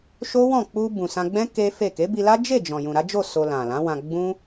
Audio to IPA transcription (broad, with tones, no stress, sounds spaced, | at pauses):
ʃ o˦ w ɔ̃˦˨ k͡p u˧ b ũ˨ s ã˧ ɡ͡b ɛ̃˦ k e˦ f e˦˨ k e˨˦ b i˧ l a˦ d͡ʒ e˦˨ d͡ʒ ɔ̃˨ j ũ˨ ɾ a˨˦ d͡ʒ o˦˨ s o˧ l ã˨ l ã˨˦ w ã˧ ɡ͡b ũ˦